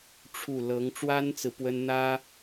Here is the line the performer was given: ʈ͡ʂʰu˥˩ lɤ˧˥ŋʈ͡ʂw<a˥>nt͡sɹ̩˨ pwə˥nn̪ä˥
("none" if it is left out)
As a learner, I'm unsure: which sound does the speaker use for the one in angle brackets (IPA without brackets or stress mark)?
a˥